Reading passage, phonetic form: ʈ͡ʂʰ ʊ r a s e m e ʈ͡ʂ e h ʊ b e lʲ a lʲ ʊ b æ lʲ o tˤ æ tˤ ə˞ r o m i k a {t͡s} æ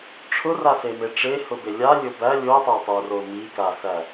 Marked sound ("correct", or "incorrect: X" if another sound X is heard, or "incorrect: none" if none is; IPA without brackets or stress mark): incorrect: s